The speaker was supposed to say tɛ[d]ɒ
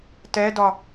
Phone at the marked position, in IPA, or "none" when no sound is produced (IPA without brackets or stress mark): d